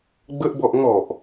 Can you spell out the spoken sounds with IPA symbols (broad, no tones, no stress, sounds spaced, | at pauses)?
ɡ͡b ə ʔ b ɔ ʔ ŋ ɔ ʔ